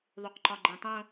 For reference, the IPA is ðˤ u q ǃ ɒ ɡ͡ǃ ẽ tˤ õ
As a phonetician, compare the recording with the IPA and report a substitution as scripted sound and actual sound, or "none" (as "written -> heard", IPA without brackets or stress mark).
none